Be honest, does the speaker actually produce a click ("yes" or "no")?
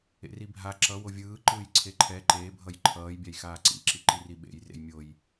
yes